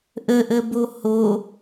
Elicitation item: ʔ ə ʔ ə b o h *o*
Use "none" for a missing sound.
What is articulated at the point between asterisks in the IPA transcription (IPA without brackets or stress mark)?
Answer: o